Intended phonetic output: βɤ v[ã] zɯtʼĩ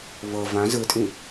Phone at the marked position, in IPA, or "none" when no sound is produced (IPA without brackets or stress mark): ã